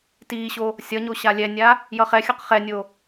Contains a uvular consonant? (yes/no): yes